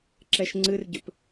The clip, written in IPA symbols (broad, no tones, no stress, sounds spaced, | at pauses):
ǁ ɛ ʃ ŋ͡ǀ ɨ r ɟ ʏ p